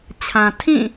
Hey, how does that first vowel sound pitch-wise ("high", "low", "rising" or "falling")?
low